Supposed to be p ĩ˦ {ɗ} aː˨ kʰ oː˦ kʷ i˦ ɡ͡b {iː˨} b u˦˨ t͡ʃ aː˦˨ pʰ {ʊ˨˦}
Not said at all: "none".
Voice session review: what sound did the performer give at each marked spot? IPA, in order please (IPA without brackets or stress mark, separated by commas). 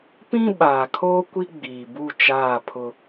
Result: ɓ, iː˨, ʊ˦